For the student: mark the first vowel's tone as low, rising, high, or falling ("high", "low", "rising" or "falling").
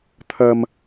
high